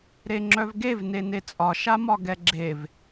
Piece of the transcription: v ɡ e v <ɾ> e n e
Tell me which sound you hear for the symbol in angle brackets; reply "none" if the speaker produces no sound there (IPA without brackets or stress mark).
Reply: n